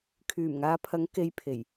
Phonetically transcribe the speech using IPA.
kʰ yː˨˩ m ŋ aː˨˧ pʰ ɐ˨˥ ŋ k e˧ j pʰ e˨˩ j

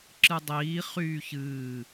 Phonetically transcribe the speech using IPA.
ǁ ɨ dˤ iː χ yː ç ɨː

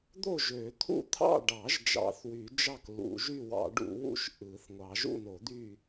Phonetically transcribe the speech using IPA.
d̪ o˥˨ ʒ ø˨˩˦ t̪ʰ ṵ˥˨ t̪ʰ ɑ̰˥˨ ɖ ɑ˨˩˦ ʒ d͡ʒ ɑ̰˨˩˦ θ w y˨˩˦ d͡ʒ ɑ˥˨ k l ṵ˨˩˦ ʒ y˥˨ w ɑ̰˨˩˦ ɖ ṵ˨˩˦ w ṵ˥˨ ʃ ʔ ɯ˨˩˦ θ ŋʷ ɑ˨˩˦ ʒ ṵ˥˨ n o˨˩˦ d̪ y˥˨

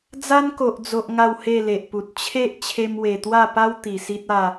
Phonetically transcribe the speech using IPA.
d͡z a˦ n k o˨ ʔ d͡z o˨ ʔ ŋ a˥˧ w h e˥˧ l e˨ ʔ p u˨ t̚ t͡ɕʰ e˦ ʔ t͡ɕʰ e˧ m w e˨˩ t̪ w a˥˧ p a˦ w t̪ i˨˩ s i˦ t̚ a˥˧

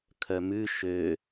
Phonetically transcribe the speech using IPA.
kʰ œ m ʉ ʃ ø

